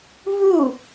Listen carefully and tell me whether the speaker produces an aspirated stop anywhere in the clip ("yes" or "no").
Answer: no